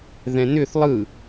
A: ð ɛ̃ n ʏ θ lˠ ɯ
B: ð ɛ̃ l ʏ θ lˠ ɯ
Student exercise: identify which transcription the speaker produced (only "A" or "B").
A